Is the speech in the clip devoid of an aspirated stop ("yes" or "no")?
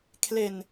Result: no